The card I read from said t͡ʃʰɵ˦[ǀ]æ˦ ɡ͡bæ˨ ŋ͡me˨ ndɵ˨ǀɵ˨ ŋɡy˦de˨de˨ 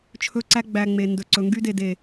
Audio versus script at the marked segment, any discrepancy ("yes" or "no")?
no